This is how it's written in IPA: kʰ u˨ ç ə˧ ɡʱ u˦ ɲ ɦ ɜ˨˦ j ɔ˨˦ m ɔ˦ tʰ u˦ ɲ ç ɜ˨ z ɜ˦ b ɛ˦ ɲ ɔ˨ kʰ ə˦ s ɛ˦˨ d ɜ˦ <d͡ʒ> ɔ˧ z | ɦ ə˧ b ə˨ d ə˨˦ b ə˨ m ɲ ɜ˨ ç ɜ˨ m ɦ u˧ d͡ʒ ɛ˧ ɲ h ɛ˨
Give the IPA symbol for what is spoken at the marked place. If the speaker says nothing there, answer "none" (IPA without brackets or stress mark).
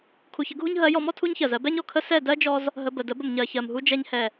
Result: d͡ʒ